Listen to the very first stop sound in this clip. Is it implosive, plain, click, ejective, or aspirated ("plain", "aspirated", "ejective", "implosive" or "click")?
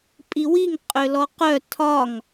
ejective